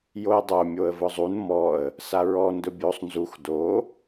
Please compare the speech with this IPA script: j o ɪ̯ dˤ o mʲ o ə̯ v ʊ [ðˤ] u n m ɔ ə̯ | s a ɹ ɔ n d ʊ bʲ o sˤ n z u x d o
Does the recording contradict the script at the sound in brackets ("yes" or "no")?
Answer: yes